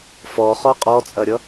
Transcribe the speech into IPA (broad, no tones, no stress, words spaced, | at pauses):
fɔχɔ qʼɔt͡sʼɐɾʲʌ